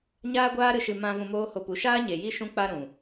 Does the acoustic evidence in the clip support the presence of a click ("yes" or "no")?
no